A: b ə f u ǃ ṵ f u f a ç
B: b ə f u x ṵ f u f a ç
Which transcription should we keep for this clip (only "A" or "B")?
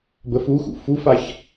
B